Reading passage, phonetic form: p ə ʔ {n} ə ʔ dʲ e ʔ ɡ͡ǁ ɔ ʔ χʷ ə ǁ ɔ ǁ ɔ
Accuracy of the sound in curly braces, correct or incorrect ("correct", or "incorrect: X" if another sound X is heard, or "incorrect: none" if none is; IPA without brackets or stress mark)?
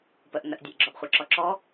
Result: correct